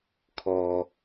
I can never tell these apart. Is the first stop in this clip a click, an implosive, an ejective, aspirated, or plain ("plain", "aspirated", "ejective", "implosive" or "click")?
aspirated